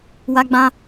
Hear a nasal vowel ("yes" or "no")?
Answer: yes